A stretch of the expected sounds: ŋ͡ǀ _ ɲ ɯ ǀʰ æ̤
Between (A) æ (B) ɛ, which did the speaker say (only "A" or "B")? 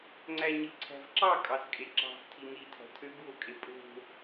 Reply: A